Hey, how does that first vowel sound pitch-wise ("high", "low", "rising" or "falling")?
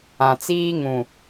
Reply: low